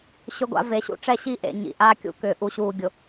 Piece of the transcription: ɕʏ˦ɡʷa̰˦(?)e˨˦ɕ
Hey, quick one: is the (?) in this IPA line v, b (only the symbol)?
v